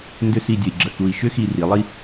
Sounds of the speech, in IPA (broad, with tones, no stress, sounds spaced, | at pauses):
n d ʏ˥ s i˥˧ dʲ ə˧ i̯ ɡ͡ǁ ə˧ k u˧ i̯ ʃ ʏ˥ x i˧ r i˩˧ lˠ i˧